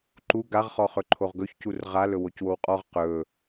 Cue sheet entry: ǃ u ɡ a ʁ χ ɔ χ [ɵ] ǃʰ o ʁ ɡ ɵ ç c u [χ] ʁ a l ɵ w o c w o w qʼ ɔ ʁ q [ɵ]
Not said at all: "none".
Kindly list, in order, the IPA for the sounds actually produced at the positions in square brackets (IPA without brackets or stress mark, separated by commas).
ɵ, r, ɵ